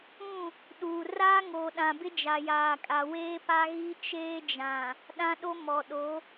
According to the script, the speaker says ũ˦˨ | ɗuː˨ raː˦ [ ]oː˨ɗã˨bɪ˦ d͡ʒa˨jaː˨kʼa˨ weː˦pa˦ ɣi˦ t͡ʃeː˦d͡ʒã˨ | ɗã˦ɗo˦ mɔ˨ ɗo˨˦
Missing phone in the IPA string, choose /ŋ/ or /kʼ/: ŋ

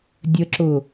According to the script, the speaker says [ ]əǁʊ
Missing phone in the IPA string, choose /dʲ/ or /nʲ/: dʲ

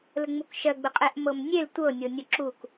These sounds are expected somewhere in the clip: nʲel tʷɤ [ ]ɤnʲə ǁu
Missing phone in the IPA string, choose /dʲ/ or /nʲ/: nʲ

